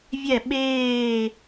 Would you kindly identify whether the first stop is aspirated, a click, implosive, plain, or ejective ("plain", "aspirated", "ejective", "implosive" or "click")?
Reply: implosive